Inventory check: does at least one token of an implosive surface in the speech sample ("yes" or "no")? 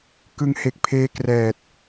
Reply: no